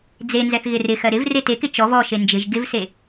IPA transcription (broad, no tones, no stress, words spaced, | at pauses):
d͡zenzɛθ ɣɪrɪxɜ ɾɪv retekɪ t͡ʃɔv ɔʃe nd͡ʒɪʒ ɡɪvse